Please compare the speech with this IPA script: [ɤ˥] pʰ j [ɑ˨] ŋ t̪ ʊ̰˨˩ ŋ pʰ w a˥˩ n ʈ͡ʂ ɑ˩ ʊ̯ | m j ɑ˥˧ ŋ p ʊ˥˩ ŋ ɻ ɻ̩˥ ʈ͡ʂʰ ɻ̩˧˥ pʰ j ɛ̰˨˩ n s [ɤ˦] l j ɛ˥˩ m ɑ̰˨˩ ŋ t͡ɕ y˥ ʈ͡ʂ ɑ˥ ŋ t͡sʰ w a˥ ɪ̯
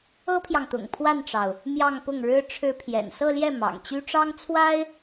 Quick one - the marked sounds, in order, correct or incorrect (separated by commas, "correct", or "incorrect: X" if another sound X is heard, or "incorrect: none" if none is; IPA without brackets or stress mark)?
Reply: correct, correct, incorrect: ɤ˥˧